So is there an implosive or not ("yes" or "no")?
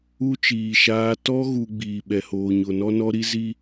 yes